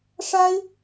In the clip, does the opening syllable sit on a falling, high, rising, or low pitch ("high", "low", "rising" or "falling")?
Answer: high